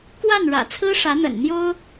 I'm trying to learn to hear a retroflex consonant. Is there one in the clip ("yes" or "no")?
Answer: yes